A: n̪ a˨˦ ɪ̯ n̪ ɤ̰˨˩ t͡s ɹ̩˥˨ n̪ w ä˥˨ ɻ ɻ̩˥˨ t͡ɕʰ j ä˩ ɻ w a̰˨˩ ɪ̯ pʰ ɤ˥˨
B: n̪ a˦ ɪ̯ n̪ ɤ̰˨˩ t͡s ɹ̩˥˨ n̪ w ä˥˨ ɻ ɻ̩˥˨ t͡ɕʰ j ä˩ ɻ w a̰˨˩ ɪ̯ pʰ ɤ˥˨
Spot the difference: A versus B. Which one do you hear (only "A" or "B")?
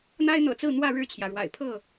B